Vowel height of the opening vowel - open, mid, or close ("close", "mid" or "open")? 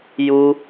close